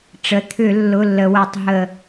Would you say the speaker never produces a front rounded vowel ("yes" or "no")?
no